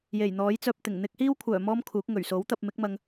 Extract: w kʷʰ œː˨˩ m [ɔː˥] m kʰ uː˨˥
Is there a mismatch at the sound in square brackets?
no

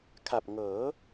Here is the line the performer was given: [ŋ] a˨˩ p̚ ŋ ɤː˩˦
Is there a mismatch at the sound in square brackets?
yes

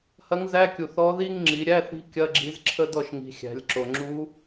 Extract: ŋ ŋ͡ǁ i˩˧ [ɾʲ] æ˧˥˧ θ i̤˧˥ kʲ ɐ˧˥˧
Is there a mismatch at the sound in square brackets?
no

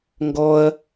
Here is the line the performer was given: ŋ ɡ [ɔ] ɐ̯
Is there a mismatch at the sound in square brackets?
no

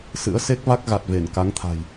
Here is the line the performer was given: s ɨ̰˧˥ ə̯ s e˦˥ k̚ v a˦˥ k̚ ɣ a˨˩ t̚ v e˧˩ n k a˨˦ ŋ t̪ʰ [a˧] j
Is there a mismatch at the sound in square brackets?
yes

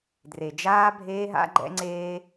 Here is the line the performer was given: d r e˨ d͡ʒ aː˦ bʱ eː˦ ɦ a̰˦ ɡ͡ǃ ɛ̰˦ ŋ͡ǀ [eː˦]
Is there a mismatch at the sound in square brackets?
no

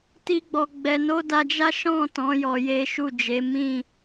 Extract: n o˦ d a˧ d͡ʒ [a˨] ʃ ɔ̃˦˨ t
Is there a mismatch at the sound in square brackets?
yes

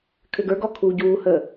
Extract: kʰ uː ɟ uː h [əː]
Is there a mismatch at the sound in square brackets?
no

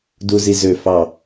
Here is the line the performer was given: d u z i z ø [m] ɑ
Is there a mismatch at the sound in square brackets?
yes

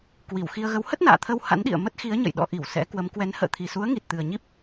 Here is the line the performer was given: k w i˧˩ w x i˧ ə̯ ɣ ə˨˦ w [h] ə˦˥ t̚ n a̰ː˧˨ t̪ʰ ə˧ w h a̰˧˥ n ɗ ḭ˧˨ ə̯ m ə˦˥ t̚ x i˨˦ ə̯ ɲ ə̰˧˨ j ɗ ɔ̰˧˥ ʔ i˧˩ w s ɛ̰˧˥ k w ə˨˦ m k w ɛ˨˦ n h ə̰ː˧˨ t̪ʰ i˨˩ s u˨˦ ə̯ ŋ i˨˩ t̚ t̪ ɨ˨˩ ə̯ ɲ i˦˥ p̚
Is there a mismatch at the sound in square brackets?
no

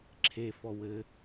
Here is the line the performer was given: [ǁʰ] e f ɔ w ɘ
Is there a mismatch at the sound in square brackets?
no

